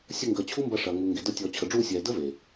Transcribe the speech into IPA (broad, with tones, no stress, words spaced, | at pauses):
sʲə˧ŋɡəː˨ t͡ɕʰu˦mbɐ˧ʂɐ˨ ŋuː˨ŋɡe˨dəː˧ tʲɔː˨t͡ɕʰə˨ɖ͡ʐuː˧sʲɛː˨ də˦ve˨